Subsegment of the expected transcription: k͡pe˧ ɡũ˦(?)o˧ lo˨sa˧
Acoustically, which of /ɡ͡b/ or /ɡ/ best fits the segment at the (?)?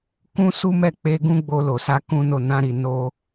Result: ɡ͡b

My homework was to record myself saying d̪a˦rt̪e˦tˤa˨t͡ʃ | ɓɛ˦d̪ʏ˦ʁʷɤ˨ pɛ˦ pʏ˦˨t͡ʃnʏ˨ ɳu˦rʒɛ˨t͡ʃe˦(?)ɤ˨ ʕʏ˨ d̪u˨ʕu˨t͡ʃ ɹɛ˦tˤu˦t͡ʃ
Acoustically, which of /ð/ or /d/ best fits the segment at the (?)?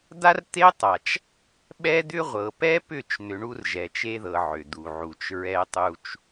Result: ð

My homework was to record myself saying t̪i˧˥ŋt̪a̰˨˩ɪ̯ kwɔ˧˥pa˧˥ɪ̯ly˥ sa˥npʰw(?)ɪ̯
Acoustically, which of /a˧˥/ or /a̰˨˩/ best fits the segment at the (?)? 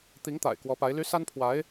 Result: a˧˥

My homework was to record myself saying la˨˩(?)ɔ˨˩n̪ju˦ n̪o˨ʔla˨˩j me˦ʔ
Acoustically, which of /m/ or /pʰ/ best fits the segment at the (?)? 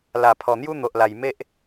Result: pʰ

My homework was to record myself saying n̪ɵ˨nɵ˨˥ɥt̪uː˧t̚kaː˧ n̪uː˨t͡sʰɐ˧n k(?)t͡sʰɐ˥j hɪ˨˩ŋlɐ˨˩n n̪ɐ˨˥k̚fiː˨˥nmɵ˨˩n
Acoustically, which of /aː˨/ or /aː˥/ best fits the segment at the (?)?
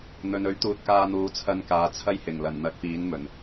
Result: aː˨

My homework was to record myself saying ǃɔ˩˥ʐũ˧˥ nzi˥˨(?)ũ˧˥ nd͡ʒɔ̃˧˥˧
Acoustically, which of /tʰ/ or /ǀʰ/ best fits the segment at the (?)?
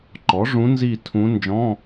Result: tʰ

